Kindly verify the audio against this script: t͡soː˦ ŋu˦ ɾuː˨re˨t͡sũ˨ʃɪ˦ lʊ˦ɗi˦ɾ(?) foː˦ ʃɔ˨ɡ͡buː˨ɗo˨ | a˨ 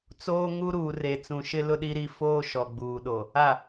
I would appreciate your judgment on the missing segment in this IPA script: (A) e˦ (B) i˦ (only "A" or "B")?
B